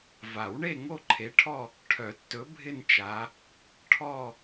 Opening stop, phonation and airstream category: click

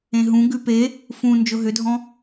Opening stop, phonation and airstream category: plain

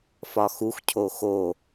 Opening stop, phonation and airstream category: aspirated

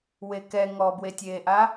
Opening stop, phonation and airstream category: plain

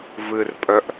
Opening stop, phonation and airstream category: ejective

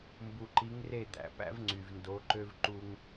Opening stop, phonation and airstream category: plain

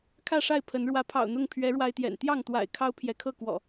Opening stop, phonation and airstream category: aspirated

